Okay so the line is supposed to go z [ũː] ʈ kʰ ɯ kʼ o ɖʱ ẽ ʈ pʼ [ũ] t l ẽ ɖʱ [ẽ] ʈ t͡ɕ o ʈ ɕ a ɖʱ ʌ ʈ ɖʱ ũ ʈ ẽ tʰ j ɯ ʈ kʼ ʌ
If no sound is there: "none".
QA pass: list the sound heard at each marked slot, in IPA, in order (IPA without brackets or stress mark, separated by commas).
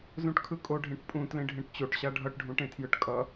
ũ, ũ, ẽ